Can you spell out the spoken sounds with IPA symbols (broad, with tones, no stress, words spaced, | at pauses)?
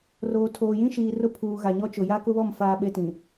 roː˨tʰoː˨jĩ˦ʃiː˨ rʊ˦pʰuː˨ ɣa˨ɲɔ˦t͡ʃʊ˨ ja˦kʊ˦βɔ˦˨m faː˦ɓe˦tĩ˨